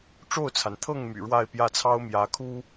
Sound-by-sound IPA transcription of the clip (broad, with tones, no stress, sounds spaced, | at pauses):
ʈ͡ʂ o˥˩ ʊ̯ t͡sʰ a˩ n t̪ʰ ɤ˥˩ ŋ m y̰˨˩ ɻ w a˥˧ ɪ̯ p j ä˥˩ t͡sʰ ɑ˥ ʊ̯ m j ä˧˥ kʰ u˥